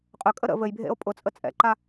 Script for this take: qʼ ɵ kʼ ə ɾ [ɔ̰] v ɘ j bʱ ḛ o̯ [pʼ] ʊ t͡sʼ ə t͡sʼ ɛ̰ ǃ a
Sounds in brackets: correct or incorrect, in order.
incorrect: ə̰, correct

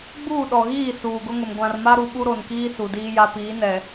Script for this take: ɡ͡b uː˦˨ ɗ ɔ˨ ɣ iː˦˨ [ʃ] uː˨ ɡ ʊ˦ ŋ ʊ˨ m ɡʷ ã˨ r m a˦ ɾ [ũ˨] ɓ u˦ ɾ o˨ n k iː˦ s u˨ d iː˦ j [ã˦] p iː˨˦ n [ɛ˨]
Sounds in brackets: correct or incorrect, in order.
incorrect: s, incorrect: u˨, incorrect: a˦, correct

